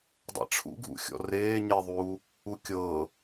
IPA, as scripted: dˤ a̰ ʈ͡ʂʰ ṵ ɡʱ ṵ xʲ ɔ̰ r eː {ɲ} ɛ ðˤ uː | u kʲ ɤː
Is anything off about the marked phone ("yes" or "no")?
no